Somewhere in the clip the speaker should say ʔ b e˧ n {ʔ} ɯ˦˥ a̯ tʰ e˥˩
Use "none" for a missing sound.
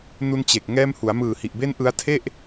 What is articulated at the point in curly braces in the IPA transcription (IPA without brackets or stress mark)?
ʔ